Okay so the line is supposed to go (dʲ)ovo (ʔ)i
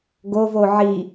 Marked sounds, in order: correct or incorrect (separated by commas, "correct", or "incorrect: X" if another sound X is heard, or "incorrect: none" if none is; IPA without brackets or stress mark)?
incorrect: ɡ, incorrect: ʕ